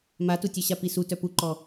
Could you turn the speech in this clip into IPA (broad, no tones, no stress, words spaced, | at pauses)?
matutʲœ ɕapisu tœpuǃɔ